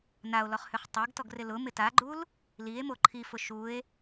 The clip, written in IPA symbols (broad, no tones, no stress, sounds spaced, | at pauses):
n a o̯ l ɔ χ h ʏ χ tˤ a ɡ t ɔ ɡ r ɪ l ʊ m ɪ t a ɡ͡ǃ u l | l i e̯ m o ǃʰ i f ʊ ʃ u e̯